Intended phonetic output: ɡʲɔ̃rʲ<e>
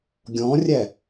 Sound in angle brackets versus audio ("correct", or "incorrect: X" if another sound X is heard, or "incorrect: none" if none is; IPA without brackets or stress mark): incorrect: ɛ